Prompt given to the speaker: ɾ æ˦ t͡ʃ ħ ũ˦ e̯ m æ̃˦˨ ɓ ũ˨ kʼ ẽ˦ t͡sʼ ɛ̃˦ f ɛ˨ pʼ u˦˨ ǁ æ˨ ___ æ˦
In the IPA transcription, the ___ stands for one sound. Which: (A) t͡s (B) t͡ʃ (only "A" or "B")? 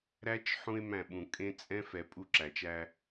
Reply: B